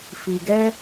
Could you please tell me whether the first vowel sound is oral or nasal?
oral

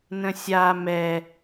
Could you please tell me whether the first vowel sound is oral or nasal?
nasal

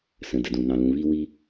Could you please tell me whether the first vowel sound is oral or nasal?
nasal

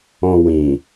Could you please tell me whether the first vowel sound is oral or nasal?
nasal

